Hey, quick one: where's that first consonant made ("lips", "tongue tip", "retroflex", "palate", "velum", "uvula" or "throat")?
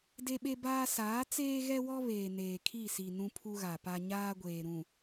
tongue tip